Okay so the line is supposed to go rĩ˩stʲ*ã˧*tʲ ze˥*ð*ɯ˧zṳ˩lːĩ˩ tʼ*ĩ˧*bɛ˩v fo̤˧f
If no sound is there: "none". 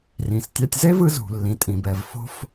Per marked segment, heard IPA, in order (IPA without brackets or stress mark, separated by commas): a˧, v, ĩ˩